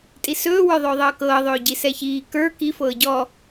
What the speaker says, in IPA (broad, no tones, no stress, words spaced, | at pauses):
tʼisɵːwə˞ ðˤɵːðˤɤːkɤː ðˤɵːɟisɛçiː kə˞ kifɤː ɟɔ